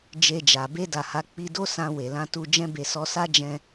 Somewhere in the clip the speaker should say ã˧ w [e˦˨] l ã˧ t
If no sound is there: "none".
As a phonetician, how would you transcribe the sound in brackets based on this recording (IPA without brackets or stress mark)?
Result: e˨